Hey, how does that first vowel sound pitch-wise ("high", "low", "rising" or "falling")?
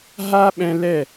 high